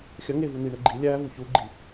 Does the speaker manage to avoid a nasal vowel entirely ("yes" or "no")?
yes